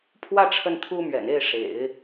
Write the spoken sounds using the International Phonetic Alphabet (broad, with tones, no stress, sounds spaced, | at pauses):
pʰ w ä˥˧ ʈ͡ʂʰ ə˥˩ n t̪ʰ u˥ m ɥ ɛ̰˨˩ n e˥˩ ɪ̯ ʂ ḛ˨˩˦ ɪ̯